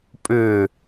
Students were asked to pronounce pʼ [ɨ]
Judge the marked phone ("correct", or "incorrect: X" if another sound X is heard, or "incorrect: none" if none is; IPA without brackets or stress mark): incorrect: ʏ